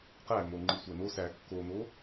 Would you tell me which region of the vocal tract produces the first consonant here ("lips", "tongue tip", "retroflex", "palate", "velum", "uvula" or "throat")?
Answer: uvula